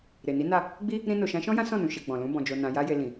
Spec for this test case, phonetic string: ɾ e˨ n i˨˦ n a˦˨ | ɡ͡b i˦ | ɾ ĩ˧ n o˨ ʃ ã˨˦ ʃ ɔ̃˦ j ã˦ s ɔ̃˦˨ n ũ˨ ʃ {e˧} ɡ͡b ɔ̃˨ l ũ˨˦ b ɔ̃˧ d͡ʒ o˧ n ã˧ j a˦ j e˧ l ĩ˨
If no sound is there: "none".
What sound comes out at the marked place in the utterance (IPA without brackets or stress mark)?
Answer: e˧